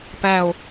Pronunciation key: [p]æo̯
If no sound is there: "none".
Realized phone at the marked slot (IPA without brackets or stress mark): p